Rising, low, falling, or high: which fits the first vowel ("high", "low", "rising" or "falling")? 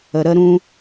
low